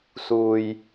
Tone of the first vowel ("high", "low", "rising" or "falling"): low